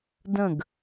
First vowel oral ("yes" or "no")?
no